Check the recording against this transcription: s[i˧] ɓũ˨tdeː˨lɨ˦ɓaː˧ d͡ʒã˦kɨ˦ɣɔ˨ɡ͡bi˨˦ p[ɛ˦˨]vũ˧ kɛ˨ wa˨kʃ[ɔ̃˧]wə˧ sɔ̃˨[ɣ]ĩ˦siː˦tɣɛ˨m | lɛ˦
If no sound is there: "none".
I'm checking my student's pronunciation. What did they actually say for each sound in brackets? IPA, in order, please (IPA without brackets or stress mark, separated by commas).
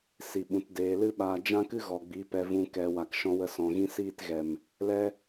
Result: i˨, ɛ˧, ɔ̃˧, ɣ